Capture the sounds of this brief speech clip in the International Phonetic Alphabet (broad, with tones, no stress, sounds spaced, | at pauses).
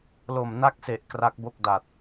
l o˨˩ m n a˥˩ k̚ s e˨˩ ʔ k r a˦˥ k̚ b o˥˩ k̚ d a˨˩ t̚